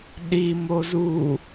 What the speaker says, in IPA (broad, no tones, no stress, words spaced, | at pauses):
ɗimo zu